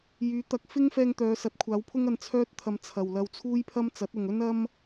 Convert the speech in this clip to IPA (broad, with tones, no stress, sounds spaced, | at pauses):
j yː˨˥ t̪ ɐ˧ k̚ f ɪ˥ ŋ f ɛː˧ ŋ t̪ œː˨˧ s ɐ˨˥ t̚ kʷʰ aː˨˥ w pʰ ʊ˥ ŋ ɐ˧ n t͡sʰ œː˥ t̚ t̪ʰ ɐ˧ m t͡sʰ ɐ˨ w l ɐ˧ w t͡sʰ uː˥ j pʰ ɐ˥ m t͡s ɐ˨˥ t̚ ʊ˨ ŋ ɵ˥ n ɐ˥ m